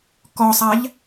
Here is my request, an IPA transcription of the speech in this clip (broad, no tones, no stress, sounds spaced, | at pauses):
k ɔ sˤ a ʎ